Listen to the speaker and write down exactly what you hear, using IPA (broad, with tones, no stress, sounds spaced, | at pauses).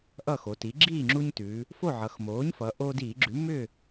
ʔ ʌ˥˨ x o˩˧ t i˩˥ ɡ͡ǁ iː˥˨ ŋ͡ǁ u˦ ɲ t ʉ˩˧ | f o˥˨ ʕ ʌ˩˧ x m oː˩˥ ɲ f ʌ˩˧ ʔ oː˦ d iː˧˩˧ ɡ͡ǁ ʉ˩˥ m ʏ˥˨